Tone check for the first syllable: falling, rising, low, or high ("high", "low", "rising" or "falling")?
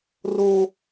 high